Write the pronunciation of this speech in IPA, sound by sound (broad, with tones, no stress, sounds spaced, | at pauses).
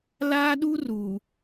l aː˦ ɗ u˦ r u˨